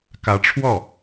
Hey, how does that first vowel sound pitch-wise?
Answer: rising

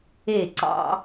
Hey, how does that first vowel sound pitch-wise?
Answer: falling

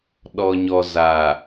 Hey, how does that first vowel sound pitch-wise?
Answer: low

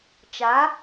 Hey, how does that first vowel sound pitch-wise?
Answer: rising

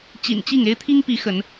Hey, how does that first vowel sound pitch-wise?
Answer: low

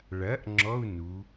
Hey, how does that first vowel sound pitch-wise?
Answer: rising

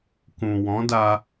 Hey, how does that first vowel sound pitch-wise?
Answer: low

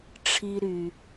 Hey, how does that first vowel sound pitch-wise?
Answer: high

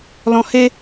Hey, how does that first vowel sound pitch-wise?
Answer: high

